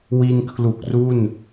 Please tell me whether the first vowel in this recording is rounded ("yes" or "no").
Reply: no